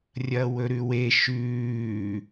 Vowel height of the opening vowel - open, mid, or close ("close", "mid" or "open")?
open